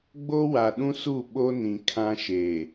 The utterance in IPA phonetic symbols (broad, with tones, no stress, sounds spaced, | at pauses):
ɡ͡b o˦ w a˨ ɗ ũ˦ s u˦˨ ɓ o˦ n ĩ˨ kʰ ã˦ ʃ e˨